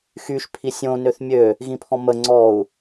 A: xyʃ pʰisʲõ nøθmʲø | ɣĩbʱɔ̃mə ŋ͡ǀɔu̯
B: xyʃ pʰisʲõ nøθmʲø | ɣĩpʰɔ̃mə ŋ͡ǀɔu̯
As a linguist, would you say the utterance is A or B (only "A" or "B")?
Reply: B